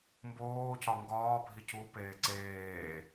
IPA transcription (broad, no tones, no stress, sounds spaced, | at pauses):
m b oː c ɒ ŋ ɡ ɒː bʱ i c u p eː ǀ eː